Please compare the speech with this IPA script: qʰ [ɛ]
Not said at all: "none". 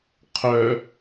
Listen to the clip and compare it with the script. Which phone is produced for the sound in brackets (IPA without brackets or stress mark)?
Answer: œ